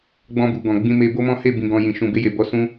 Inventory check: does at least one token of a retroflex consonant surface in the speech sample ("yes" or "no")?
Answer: no